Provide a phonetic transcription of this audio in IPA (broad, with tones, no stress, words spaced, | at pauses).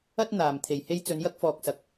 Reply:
ɐ˥t̚ n̪aː˨m t̪ʰe˨˩jhe˥j t͡sɵ˨˧njɐ˥k̚fɔː˨k̚sɐ˨˥k̚